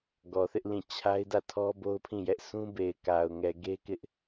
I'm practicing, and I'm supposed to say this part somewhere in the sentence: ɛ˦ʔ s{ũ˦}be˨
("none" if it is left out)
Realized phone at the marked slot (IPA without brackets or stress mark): ũ˦